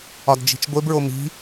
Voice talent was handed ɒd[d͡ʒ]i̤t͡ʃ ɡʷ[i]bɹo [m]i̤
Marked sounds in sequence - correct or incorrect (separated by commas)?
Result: correct, incorrect, correct